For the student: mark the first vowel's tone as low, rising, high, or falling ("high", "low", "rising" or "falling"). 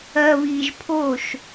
low